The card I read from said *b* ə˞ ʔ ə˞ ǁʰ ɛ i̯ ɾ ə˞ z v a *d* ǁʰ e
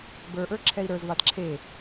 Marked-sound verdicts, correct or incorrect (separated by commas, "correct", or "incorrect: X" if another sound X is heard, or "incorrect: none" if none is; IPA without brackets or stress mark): correct, correct